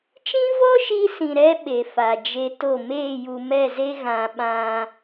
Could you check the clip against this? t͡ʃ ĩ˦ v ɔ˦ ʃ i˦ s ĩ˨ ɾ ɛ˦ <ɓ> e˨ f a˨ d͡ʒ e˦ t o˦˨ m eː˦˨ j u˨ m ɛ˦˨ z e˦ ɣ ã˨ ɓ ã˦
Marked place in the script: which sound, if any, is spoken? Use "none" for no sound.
ɓ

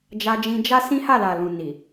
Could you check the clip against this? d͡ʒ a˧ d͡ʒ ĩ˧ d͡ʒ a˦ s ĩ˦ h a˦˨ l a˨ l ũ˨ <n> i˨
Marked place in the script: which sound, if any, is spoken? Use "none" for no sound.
n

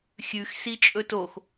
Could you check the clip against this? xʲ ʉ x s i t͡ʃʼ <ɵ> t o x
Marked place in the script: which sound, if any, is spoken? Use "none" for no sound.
ɵ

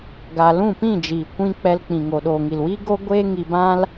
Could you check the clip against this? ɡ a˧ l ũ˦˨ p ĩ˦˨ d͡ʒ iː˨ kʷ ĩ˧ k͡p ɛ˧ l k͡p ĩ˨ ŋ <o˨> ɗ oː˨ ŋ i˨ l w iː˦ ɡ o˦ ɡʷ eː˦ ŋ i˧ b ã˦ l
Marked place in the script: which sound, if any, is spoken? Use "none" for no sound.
o˨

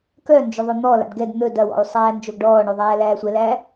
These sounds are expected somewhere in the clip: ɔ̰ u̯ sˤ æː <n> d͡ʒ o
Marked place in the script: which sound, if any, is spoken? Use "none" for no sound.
n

